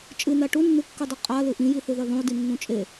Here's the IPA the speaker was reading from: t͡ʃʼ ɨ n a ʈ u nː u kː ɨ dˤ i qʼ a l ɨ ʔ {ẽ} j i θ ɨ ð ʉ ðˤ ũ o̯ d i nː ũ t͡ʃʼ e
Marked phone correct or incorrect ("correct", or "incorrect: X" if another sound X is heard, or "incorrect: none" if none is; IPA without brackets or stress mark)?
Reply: incorrect: ĩ